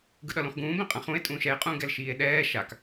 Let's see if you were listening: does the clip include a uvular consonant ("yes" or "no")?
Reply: yes